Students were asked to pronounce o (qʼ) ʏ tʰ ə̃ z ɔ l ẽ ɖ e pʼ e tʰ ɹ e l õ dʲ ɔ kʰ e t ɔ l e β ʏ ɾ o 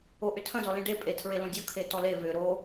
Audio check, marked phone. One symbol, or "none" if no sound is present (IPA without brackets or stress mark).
ʔ